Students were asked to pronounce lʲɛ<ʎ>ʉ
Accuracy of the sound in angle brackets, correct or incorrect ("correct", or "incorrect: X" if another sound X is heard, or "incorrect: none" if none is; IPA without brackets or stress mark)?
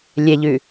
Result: correct